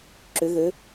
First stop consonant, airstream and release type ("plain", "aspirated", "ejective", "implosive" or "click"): click